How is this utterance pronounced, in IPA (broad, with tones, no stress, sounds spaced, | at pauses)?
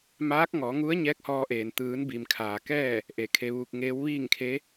m aː˧˥ k̚ ŋ ɔː˩˧ ŋ u˧˥ ə̯ ɲ ɛː˧˥ k̚ h ɔː˧ ʔ eː˩ n t̪ ɯː˩˧ n b i˩ m kʰ aː˩ k ɛː˥˨ | ʔ e˧˩ kʰ e˧ ʋ uː˧ k̚ ŋ eː˧˥ w ʋ iː˥˨ ŋ kʰ e˧˥